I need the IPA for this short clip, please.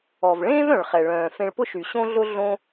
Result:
ɔ˩ v ɭ ẽː˥ v œ̃˩ ɭ χ ɛ˩ ɭ œ̃ː˩ f ẽ˧ ɭ p ʊ˥ ʃ y˩ ɕ õ˥ ɮ ʊ˥ ɮ õ˧

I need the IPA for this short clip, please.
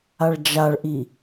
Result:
a ɭ d͡ʒ a ɭ ʔ i

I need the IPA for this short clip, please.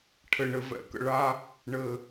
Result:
ʈʰ ɘ˨ ɳ ɘ˨ v ɛ̰˨ k ə̰˨ ɭ a˦ | ɳ ɘ˨

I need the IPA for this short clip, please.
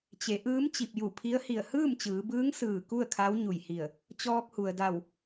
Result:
t͡ɕ e˩˧ ʔ ɯː˧˥ m t͡ɕ i˧˩ p̚ j u˧˩ pʰ i˧˥ ə̯ h i˧˩ ə̯ h ɯː˥˨ m t͡ɕ ɯː˩˧ b ɯː˧˥ ŋ s ɯː˧˩ k u˥˨ ə̯ kʰ a˧˥ w ɲ u˧˩ j h i˧˩ ə̯ | t͡ɕ ɔː˧ k̚ h u˩ ə̯ d a˧˩ w

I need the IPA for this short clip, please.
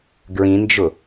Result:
ɡ ɹ ĩ n d͡ʒ ʊ

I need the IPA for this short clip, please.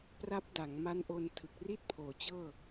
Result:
p r a˦˥ p̚ d a˩˦ ŋ m a˦˥ n ʔ o˧ n tʰ ɯ˨˩ k̚ r i˥˩ t̚ pʰ oː˩˦ t͡ɕ ɤː˥˩

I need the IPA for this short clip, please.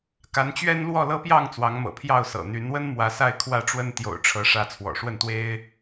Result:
k a˨˦ n t͡ɕ ɥ ɛ˦ n l w ɔ˥˨ l ɤ˦ p j ɑ˥˨ ŋ t͡s w ɑ˨˦ ŋ m ɤ̰˨˩ pʰ j ɑ˥˨ ʊ̯ s ɤ̰˨˩ n̪ y˨˦ n w ə˦ n m w ä˨˦ s a˥˨ ɪ̯ kʰ w ä˥˨ ʈ͡ʂ w ə˦ n t̪ j o̰˨˩ ʊ̯ ʈ͡ʂʰ ɤ˨˦ ʂ ä˨˦ t͡sʰ w ɔ̰˨˩ ʂ w ə˥˨ n t̪ w e˦ ɪ̯

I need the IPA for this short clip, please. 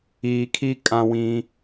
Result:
iː˨ kʰ i˦ kʼ ã˦ w ĩ˦

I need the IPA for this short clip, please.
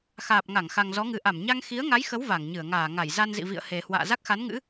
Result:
x aː˨˩ p̚ ŋ a˧˩ ŋ x a˨˩ ŋ z ɔ˨˦ ŋ ɨ˨˩ ʔ a˧˩ m ɲ a˧ ŋ x i˨˦ ə̯ ŋ a˨˦ j x ə˨˦ w v a˧˩ ŋ ɲ ɨ˧˩ ə̯ ŋ aː˧˩ ŋ a˧˩ j z a˧ n z ḭ˧˨ v ḭ˧˨ ə̯ h e˨˩ h w a̰ː˧˨ z a˦˥ k̚ x a˨˦ n ŋ ɨ̰˧˥

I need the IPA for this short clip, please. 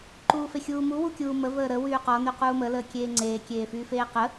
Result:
ǃ uː f e xʲ uː m u w u kʲ uː m ə v əː ɾ ə w yː q ɔ n y q uː m ə l əː kʲ eː ŋ͡ǀ eː kʲ eː f yː f eː q ə

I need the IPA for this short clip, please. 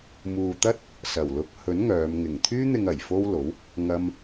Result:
m uː˨ t̪ ɐ˥ t̚ | s ɐ˨˩ w l ʊ˨˥ k̚ h ɵ˨˥ n ŋ œː˨˧ m ŋ ɪ˨˩ ŋ t̪ʰ yː˧ n̪ ɪ˨ ŋ ɐ˨˩ j f o˥ w l o˨˥ w | ŋ ɐ˧ m

